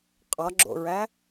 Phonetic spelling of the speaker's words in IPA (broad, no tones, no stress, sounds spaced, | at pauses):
qʼ ɒ ɡ͡ǁ o̰ ɹ æ